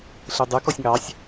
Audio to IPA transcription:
ɬɯdˤʉ kɔsʲŋɑsʲ

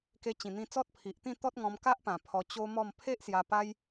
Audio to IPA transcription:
ke˧t͡ɕĩ˨˩n̪ĩ˧ t͡sɔ˦t̚pʰi˨ʔt̪ĩ˥˧ t̪ɔ˦t̚ŋɔ̃˧mka˦ʔpã˨˩ pʰɔ˧t͡ɕo˦mɔ˥˧m pʰe˦ʔsja˧ pa˦j

